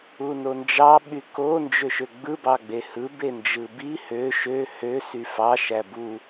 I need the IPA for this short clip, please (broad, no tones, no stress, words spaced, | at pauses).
unond͡ʒɑ ɓyko nd͡ʒøʃøɡ͡bɯ bɑɡ͡behɯ bend͡ʒɯbi hø ʃø hø syfɑ ʃæbu